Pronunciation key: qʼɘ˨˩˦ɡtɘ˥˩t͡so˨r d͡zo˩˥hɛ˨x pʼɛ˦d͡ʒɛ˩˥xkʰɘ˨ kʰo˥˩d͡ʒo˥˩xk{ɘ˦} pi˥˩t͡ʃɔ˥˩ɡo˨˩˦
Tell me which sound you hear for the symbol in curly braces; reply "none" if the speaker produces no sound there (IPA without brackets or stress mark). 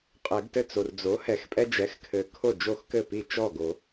ɘ˥˩